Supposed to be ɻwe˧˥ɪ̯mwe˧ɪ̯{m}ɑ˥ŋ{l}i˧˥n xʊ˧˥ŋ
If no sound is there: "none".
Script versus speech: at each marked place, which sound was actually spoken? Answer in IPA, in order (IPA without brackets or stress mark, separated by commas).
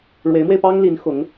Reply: p, l